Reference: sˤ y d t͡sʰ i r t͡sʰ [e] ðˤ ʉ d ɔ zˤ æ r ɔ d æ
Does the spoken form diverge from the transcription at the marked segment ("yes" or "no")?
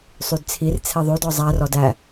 no